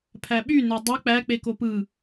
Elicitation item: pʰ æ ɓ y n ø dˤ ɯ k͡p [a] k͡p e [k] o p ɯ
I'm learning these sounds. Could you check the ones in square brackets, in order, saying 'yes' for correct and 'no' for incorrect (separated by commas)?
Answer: no, yes